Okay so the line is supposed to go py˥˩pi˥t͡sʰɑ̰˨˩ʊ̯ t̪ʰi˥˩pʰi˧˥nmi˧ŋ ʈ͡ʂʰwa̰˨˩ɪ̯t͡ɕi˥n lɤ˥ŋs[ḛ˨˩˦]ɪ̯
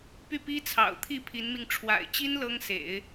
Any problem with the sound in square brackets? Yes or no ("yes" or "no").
no